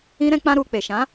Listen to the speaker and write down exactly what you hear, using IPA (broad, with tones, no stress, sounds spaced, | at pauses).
ĩ˧ ɾ ɛ̃˧ k͡p ã˧ ɾ u˧ k͡p e˨ ʃ ã˨˦